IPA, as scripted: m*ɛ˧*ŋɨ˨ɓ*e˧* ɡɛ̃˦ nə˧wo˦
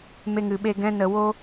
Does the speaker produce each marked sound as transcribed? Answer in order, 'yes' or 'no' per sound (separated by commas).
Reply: no, yes